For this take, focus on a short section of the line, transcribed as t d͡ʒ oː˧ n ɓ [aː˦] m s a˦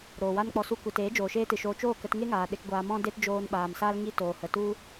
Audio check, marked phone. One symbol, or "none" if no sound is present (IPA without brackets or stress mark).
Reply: aː˨